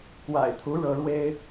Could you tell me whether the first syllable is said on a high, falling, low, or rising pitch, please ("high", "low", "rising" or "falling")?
low